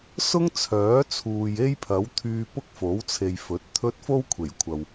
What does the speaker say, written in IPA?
s ʊ˥ ŋ t͡sʰ œː˨˥ t͡sʰ uː˨ j e˥ j pʰ ɐ˨˥ w t̪ʰ yː˧ p ʊ˥ k̚ f o˨˥ w t͡sʰ e˨ j f ɵ˨˥ t̚ t̪ʰ ɵ˥ t̚ f o˥ w kʷʰ e˨˩ j kʷʰ ɐ˨ w

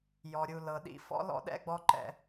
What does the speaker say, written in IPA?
j ɔ˨ ɾʲ u˨ l ɤ˨ ɗ ḭ˦ f ɔ̰˦ l ɔ̰˦ ɗ ɛ̰˦ ɡ͡b ɔ˦ ǃ ɛ̰˦

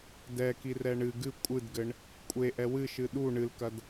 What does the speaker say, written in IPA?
d ɛ k i r ɛ ɳ ɨ ɡ ɨ kʷʼ ɨ d ɡ ɘ ɳ | kʷʼ e ʔ ɛ w ɨ ʃ ɨ ɗ u ɳ ɨ l k ɐ d

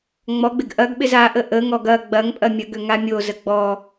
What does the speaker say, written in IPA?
ŋ͡m ɔ ɡ͡b ɪ ɡ ʔ ɐ ɡ ɓ ɪ z a ʔ ə ʔ ə ŋ ɔ ɡ ɐ ɡ͡b ɐ ŋ pʼ ɐ mʲ ɐ ɡ ø ŋ a mʲ o z ə ɡ͡b ɔ

